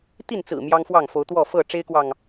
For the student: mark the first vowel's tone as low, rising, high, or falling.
falling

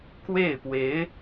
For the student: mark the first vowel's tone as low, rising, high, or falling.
falling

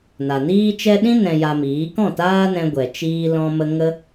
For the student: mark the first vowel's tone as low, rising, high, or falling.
low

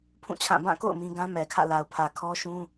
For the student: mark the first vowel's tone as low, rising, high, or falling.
falling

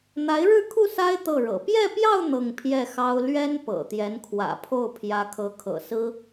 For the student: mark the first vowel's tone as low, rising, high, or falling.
rising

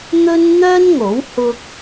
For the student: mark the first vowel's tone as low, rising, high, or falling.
high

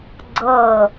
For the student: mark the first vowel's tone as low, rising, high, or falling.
falling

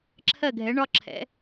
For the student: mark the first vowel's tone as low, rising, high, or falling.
falling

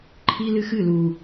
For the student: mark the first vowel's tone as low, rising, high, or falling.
high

